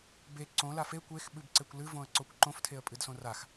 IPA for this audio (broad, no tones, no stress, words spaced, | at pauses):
be ǀõ lafe kʷex ɓɨbǀekʷlɨ võə̯ǀokʷǃõf tʰeə̯pʼɨdsõrax